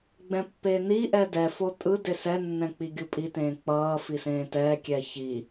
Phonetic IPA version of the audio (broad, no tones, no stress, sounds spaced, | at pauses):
ɡ͡b ɛ̃ pː e n i ʔ ɛ d ɛ f o tʼ ɯ d e s ɛ nː ɛ̃ k͡p i ɡʲ u pʼ i t ẽː k͡p ʌː f i s ẽː t ɛː kʲ ɛː ç i